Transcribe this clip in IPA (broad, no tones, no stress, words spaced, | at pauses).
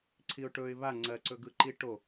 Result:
ǀʰiʊ̯ʈɵɪ̯ βa ŋ͡ǀɜǀɵ ɡɯǃiʈo